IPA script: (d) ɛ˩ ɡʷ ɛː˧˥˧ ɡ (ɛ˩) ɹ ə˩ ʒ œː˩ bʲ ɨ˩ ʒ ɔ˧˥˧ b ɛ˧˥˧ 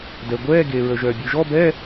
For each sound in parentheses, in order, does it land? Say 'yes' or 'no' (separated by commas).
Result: yes, no